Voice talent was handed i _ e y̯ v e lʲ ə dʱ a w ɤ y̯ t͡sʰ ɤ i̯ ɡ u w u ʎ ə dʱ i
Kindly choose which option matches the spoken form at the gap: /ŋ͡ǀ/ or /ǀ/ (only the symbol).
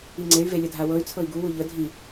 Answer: ŋ͡ǀ